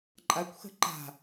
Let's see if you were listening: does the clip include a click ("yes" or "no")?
yes